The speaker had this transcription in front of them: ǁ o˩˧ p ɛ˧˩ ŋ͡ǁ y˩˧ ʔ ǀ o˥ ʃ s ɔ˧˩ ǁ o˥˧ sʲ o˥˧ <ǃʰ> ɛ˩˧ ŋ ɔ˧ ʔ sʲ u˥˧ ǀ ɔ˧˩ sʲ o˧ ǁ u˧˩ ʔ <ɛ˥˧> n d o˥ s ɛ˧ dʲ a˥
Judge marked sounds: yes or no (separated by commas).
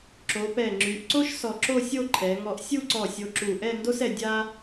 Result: yes, yes